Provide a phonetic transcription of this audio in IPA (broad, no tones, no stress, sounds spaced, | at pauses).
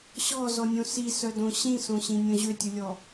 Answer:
ɕ ɔ z ɔ nʲ õ s i s œ d õ ɕ ĩ s õ ɕ ĩ nʲ õ ʑ ø tʲ u lʲ ɔ